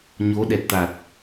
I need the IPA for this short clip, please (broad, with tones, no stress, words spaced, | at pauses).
ɲo˨˦ ɗɛ˨˩t̚t̪a˨˩t̚